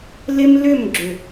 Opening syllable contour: high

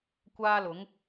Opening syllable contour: high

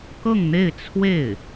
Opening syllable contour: falling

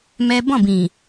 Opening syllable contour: high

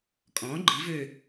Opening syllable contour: rising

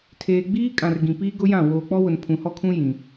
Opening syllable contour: low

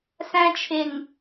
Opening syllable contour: high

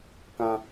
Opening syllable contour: high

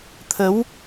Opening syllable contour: rising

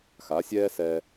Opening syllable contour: rising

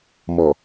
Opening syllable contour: low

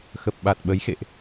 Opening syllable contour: low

